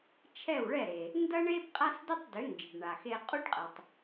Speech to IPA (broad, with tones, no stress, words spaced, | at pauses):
t͡ʃʰɛ˥˩wɭɛ˥˩ɾe˩ | ndɐ˥ɳe˥b qʼa˥sdʊ˥tˤdʏ˩˥nd͡ʒɪ˩ɖ ɳa˩xe˧qʼu˥ɖqʼɛ˩tˤ